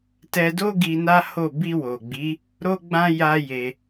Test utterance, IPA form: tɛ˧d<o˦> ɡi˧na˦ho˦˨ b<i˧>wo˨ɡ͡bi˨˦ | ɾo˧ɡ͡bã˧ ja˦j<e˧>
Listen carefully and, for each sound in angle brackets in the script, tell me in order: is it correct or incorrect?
correct, correct, correct

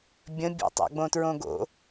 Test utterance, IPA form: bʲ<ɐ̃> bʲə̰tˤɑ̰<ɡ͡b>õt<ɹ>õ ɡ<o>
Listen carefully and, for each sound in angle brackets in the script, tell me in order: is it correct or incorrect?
incorrect, correct, correct, incorrect

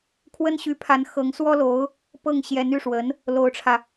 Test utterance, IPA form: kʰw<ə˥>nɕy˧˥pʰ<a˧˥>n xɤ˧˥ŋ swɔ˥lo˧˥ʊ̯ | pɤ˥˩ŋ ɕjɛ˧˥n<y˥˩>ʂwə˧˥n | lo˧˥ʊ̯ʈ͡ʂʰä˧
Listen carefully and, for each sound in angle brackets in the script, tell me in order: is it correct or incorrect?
correct, correct, correct

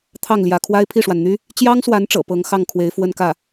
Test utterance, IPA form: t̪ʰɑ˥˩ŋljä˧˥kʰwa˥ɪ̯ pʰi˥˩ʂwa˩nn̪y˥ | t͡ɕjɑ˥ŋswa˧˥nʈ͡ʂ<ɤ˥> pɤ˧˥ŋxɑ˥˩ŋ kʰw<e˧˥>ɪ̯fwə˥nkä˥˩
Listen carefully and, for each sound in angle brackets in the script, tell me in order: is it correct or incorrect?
incorrect, correct

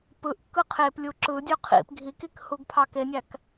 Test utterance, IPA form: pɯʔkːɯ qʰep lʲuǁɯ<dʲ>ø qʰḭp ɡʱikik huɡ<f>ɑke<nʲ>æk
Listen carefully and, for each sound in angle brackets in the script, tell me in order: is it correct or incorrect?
correct, incorrect, correct

